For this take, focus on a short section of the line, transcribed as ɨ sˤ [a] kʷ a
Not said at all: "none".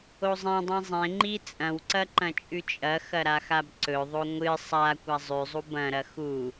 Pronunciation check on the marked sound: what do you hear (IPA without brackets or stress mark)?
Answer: a